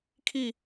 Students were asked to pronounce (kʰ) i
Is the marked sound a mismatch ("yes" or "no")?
no